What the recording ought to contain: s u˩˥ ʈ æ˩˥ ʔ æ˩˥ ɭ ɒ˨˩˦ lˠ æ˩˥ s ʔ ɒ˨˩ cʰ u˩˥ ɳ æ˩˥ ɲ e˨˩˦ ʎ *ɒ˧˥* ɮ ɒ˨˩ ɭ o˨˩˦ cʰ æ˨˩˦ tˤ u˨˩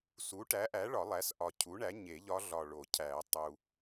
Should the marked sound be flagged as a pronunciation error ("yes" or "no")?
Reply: no